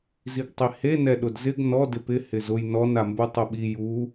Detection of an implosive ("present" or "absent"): present